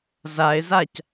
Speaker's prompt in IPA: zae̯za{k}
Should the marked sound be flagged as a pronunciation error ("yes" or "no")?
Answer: yes